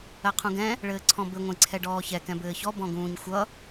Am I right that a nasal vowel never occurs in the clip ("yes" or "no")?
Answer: no